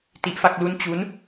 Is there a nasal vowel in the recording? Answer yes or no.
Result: no